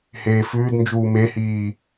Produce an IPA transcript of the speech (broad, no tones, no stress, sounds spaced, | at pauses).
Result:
h eː f ʉː d n d͡ʒ uː m e h iː